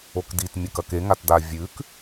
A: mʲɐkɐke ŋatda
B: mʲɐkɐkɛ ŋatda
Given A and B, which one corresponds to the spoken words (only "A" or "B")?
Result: A